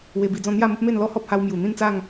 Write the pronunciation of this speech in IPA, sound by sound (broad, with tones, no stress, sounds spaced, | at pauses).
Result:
w e˧ b i˧ d͡z ɔ̃˥˧ n̪ j a˥˧ m ə˦ p̚ m e˥˧ n l ɔ˦ h ɔ˦ p̚ h a˧ w m j u˨˩ n̪ ĩ˥˧ n t͡s a˥˧ ŋ